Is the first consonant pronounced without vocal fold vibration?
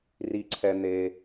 no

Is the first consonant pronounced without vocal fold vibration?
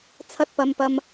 yes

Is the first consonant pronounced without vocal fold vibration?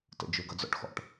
yes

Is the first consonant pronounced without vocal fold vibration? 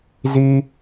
no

